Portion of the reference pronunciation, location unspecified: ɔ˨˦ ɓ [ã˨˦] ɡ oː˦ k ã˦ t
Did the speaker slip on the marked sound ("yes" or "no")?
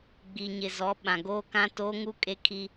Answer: yes